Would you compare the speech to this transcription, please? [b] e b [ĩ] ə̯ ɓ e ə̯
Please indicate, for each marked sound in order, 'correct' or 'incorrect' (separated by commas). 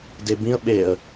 incorrect, correct